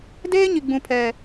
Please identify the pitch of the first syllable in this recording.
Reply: high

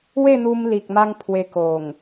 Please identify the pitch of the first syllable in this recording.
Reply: falling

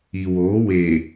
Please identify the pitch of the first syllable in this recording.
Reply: low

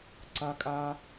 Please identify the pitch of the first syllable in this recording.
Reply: high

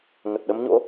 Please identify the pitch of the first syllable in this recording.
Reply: low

